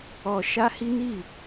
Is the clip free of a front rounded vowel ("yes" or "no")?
yes